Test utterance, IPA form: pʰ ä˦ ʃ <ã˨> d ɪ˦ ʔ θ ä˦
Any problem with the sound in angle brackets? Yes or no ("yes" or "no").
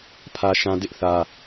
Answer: yes